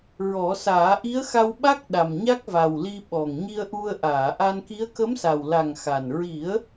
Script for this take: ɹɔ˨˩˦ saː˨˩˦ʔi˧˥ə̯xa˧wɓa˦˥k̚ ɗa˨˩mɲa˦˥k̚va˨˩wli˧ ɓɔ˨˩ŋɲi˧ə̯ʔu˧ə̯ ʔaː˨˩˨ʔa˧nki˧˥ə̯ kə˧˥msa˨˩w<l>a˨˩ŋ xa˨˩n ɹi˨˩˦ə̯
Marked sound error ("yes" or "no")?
no